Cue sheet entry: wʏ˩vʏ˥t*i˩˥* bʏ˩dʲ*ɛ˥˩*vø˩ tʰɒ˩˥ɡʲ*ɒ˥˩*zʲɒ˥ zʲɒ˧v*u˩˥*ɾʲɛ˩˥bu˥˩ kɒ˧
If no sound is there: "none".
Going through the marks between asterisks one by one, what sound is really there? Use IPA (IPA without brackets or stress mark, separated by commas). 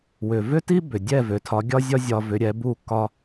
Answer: i˥, ɛ˥˩, ɒ˥, ʏ˩˥